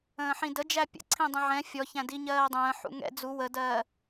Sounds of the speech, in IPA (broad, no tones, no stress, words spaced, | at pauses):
ə̃ːħĩdə d͡ʒæpʲə̰ǀʰĩ dˤə̃ʕɛ̃ fʲɔçæ̃ diɲɜːdˤə̃ː ħṵŋɛ̰ d͡zu wədɜː